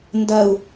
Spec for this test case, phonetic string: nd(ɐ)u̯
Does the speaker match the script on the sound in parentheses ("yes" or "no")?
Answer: yes